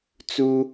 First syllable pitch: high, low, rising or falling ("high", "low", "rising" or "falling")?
high